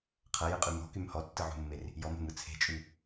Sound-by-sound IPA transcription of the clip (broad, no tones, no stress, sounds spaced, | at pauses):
qʰ ɐ j ɯ qʼ y m ɔ̤ k y m h ɔ tː ɯ ʕ ṳ mː e r | j ɔ m e̤ m ɯ t͡sʰ e̤ t͡ʃʼ y